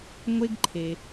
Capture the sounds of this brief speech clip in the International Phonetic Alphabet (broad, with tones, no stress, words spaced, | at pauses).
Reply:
ŋʷe˧ɡǃʰe˩